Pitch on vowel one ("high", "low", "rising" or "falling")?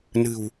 low